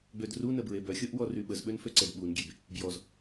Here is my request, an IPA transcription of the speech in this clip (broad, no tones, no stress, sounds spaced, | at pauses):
ɡ͡b ø d r u n ə b ɹ e b œ xʲ o ʔ w ɔ r y ɓ ə z ɓ ø n f ø ǀ ɛ d ɓ u n ɡʲ e b | b j ɔ z